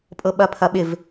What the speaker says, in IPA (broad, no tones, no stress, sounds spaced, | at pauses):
pʼ ɤ ɓ ɐ pʰ ɐ ɓ ɪ v